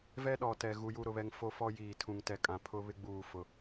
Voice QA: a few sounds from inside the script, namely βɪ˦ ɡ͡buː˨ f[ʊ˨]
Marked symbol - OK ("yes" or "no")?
yes